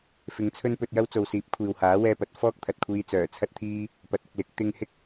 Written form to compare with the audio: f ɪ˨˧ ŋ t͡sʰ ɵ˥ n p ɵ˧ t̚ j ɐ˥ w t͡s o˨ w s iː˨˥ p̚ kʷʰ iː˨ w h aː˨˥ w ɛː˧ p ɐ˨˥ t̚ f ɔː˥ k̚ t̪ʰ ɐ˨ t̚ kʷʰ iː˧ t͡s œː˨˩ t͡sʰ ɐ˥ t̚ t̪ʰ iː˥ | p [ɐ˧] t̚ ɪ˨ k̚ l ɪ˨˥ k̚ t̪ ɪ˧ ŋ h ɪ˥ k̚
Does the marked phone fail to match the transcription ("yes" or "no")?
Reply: yes